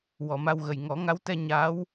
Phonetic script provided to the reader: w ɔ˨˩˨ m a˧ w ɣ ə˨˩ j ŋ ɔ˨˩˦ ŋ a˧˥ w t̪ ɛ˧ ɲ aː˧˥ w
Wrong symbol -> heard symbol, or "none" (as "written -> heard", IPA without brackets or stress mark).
none